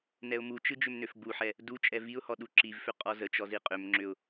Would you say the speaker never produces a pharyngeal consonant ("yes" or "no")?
no